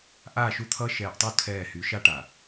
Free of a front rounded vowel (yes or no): no